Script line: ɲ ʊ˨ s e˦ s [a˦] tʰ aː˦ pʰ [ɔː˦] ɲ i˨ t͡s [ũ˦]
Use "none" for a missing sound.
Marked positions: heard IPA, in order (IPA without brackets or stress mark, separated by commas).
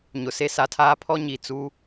a˨, ɔ˦, u˦